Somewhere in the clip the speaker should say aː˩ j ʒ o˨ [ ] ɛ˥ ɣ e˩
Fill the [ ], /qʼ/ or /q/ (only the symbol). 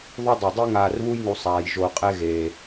qʼ